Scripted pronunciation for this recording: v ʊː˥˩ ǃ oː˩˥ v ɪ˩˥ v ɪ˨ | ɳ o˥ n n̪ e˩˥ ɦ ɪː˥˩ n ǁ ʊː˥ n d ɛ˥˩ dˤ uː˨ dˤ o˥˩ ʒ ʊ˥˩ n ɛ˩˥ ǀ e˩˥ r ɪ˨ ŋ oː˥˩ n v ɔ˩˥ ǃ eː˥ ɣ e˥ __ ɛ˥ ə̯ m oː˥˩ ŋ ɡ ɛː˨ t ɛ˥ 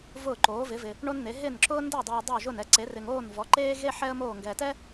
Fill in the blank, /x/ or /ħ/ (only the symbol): ħ